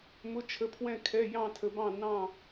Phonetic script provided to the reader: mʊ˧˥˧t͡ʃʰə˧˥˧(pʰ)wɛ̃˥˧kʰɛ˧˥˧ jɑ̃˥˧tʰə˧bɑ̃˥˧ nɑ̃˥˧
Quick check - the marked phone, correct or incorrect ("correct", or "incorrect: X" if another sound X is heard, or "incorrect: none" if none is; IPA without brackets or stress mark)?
correct